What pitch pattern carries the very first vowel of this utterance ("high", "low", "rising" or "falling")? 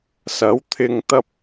rising